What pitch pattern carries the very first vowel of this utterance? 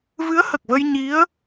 rising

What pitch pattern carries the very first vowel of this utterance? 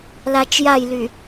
low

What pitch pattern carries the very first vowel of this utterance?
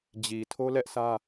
low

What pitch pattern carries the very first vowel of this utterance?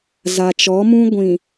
low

